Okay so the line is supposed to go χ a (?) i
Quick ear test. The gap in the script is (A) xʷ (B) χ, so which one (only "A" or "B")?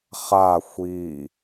A